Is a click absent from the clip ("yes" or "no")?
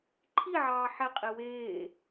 no